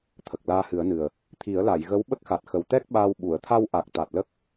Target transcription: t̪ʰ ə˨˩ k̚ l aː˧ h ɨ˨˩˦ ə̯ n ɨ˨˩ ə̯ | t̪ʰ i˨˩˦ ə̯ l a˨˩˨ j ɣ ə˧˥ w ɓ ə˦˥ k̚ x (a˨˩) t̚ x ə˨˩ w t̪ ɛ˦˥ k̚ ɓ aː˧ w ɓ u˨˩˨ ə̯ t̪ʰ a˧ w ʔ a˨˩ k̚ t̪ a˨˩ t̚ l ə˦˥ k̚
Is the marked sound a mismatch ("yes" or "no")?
no